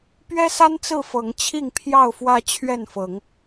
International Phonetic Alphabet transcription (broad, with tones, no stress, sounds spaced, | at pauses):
p ɥ ɛ˦ s a˦ n t͡s ɹ̩˥˨ f ɤ˨˦ ŋ t͡ɕʰ i˥˨ ŋ pʰ j ɑ˥˨ ʊ̯ f w ä˦ t͡ɕʰ ɥ ɛ˥˨ n f ɤ˨˦ ŋ